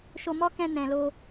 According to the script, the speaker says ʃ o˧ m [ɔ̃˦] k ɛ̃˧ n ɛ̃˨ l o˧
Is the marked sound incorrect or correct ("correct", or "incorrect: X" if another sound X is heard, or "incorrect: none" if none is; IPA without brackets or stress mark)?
incorrect: ɔ˦